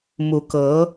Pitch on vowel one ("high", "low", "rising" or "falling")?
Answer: rising